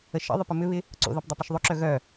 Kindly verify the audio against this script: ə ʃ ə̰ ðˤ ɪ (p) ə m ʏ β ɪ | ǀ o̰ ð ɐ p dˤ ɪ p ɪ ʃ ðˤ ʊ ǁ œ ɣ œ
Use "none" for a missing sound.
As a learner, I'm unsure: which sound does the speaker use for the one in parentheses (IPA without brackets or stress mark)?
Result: p